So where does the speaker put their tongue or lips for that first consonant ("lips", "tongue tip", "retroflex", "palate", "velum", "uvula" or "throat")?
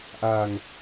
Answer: throat